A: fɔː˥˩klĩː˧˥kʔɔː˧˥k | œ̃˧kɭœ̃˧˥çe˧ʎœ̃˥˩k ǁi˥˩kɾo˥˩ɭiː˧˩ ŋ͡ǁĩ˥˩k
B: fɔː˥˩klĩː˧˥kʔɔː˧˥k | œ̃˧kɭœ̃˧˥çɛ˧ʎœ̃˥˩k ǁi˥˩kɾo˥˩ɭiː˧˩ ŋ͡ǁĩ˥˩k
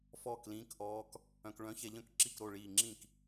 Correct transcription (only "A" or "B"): B